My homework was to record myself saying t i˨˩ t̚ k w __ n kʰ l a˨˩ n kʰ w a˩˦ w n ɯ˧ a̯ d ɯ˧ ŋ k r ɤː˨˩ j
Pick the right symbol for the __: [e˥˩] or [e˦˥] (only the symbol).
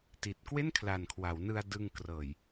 e˥˩